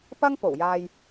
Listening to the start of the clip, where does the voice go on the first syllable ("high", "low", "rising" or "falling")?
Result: high